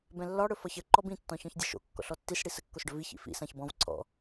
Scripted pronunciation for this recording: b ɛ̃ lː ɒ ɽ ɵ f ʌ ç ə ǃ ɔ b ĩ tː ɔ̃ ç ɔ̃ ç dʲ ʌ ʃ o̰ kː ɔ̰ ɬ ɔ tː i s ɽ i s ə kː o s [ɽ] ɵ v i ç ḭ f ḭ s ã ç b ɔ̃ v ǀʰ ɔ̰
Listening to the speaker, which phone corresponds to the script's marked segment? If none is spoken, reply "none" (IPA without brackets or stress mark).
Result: ɖ